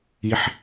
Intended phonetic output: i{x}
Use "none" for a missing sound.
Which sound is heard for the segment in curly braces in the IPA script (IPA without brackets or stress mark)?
ħ